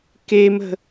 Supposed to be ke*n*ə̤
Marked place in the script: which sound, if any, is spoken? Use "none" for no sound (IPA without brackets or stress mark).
m